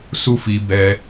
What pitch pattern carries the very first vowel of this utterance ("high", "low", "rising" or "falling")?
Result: high